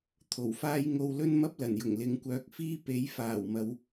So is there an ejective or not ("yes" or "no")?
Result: no